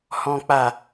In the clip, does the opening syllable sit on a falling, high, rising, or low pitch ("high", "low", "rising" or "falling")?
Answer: low